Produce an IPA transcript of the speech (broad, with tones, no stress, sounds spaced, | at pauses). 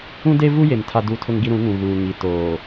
ũ˦ d e˦ v u˦ j e˨ m tʰ a˦ d u˦ tʰ ʊ˦ ŋ ɡ i˦ ɾ ũ˨˦ ŋ ũ˨ ɣ uː˨ ŋ i˨ t oː˨